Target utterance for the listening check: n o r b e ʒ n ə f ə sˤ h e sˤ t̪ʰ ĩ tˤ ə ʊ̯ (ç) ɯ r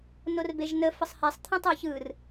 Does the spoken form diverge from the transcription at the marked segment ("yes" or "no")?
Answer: no